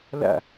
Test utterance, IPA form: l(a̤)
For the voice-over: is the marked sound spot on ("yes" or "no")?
no